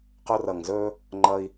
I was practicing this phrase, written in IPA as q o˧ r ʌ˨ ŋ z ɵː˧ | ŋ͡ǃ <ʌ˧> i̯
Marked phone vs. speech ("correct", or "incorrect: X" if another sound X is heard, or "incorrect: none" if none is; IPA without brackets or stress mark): correct